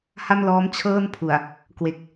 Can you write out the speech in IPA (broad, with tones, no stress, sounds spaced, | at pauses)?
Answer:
h a˥˩ m l ɔː˦˥ m t͡ɕʰ ɤː˥˩ n pʰ u˨˩ a̯ | k w e˨˩ k̚